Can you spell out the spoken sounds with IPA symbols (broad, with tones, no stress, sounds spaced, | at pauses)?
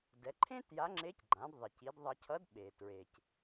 d ɛ˩˧ ǃʰ ẽ˥ t j a˧˥ ŋ͡ǁ e˧˥ c ɡ͡ǃ ã˩˧ d ðˤ i˩ c i˩˧ d ðˤ ʌ˧ cʰ ʌ˧˥ d ɓ e˩ t ɹ e˩ c